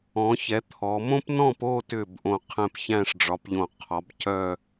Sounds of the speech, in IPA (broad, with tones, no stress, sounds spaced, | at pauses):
ɔ̃˩˧ ç ɛ˩˧ t̪ʰ ɔ˩˧ m õ˥ p n ɔ̃˥˧ p o˥˧ t ʏ˧˩ b ʔ õ˧˩ qʰ ɛ̃˧˩ p ç æ̃˥˧ ʂ ɖ͡ʐ ɒ˩˧ p ʎ õ˧˩ qʰ ɒ˩˧ b c œ˥˧